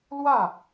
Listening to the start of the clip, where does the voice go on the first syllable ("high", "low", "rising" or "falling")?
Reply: falling